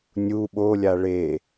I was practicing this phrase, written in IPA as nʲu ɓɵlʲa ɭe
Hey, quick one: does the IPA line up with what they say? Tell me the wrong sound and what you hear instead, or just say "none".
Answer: ɵ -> o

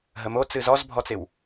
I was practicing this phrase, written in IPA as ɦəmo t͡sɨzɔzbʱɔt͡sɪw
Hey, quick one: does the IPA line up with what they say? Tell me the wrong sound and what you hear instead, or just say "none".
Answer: none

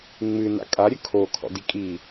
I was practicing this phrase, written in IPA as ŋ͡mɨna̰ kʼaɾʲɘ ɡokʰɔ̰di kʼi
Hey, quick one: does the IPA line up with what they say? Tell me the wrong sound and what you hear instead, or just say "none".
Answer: ɡ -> kʰ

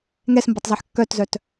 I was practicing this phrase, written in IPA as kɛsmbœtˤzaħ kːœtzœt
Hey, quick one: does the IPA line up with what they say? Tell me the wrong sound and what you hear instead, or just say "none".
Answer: k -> ŋ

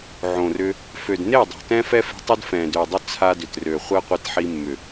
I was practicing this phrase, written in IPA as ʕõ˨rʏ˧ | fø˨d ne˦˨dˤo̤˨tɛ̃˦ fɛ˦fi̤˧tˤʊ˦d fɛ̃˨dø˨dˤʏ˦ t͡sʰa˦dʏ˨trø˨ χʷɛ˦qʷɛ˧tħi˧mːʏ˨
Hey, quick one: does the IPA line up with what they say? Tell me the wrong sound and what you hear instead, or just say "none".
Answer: none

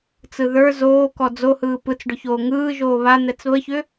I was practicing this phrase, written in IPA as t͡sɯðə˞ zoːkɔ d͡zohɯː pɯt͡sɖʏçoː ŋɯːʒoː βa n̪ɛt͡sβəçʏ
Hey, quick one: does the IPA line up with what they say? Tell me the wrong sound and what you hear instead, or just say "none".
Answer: none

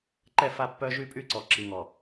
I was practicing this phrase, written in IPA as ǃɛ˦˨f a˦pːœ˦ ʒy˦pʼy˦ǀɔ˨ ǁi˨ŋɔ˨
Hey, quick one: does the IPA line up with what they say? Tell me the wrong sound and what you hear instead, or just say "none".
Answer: none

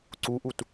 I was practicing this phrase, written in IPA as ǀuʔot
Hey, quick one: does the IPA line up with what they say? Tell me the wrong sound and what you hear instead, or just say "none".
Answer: o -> u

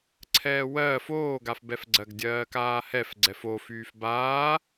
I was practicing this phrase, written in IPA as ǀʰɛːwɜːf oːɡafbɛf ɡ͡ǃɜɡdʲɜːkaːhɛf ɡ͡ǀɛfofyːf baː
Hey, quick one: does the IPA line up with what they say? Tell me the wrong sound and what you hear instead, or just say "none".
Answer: ɡ͡ǃ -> ɡ͡ǀ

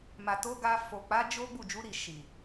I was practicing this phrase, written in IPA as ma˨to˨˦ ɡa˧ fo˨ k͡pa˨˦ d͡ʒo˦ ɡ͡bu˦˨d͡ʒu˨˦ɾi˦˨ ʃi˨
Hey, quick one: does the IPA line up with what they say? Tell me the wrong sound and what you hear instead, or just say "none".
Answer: none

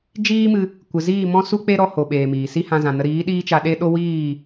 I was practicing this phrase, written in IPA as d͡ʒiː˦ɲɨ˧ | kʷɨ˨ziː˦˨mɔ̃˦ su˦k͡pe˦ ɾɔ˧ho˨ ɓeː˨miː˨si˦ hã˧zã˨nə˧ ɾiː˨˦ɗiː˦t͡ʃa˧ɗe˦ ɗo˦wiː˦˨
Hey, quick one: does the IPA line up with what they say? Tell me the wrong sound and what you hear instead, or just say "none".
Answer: ɲ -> m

